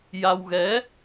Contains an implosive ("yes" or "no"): no